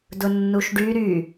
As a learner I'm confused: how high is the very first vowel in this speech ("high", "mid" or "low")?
high